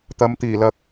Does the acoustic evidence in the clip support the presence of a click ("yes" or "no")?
no